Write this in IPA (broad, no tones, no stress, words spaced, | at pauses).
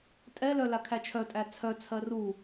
tʼɛlœ lakʰæt͡ʃʰœtʼæ t͡sʰœt͡sʰɜ ru